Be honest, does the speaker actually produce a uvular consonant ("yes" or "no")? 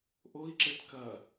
no